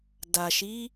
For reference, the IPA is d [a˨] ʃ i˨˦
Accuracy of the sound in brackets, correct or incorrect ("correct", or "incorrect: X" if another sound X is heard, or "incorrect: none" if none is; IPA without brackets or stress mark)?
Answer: correct